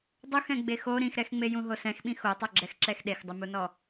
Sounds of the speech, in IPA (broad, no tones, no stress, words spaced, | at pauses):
dˤuxɛ̃ ɡ͡bexo ɾĩxɾɛxŋ͡mejũ ɦosɛ̃xɓĩ xotˤoɡ͡ǁɛxǁɛx ɗexdˤɪmunɔ